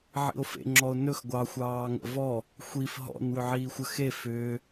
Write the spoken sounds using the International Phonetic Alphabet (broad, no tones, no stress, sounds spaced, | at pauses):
ʕ ḭ o̯ f ḛ ŋ͡ǁ ɔ o̯ n ɵ x ɡʷ ɑ xʷ ɑː ŋ ə̰ v ɔ | xʷ i f ɦ ɔ̰ n w ʏ ʕ iː xʷ ə x e f ʏː